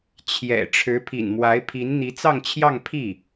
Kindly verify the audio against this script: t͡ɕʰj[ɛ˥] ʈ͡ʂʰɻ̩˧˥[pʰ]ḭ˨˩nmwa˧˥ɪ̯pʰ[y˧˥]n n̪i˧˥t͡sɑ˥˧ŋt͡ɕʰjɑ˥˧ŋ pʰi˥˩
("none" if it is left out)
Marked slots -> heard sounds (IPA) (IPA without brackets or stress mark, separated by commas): ɛ̰˨˩, pʰ, i˧˥